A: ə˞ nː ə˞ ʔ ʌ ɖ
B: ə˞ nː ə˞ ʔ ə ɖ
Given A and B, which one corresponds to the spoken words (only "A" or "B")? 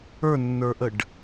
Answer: B